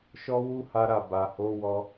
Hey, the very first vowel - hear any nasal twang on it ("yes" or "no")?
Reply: no